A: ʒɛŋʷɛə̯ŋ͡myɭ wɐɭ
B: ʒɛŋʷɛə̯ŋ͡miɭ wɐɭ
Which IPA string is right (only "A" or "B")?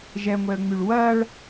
A